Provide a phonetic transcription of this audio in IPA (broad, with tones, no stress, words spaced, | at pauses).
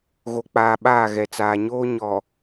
ɣo˨k͡paː˨ɓaː˦˨ ɣɛ˨t͡saː˨ɲoː˦ ɲɔ˨